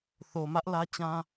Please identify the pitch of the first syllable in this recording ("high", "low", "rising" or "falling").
low